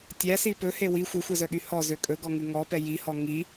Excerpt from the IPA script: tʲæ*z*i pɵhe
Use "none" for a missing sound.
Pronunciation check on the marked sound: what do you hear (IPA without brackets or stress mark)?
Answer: s